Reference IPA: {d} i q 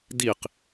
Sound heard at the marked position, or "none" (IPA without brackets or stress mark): d